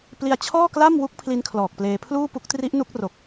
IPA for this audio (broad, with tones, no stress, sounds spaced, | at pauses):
p l i˧ a̯ t͡ɕʰ ɔː˥˩ k l a˥˩ m w u˦˥ k̚ pʰ l i˧ n kʰ l ɔː˨˩ k̚ p l eː˧ pʰ l uː˥˩ p u˦˥ k̚ t r i˦˥ ʔ n u˦˥ k̚ r o˨˩ k̚